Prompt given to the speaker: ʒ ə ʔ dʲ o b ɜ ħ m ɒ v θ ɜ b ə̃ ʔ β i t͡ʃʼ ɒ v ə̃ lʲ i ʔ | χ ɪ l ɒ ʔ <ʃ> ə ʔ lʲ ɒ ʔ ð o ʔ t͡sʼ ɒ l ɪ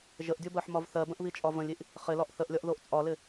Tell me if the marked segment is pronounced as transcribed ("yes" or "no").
no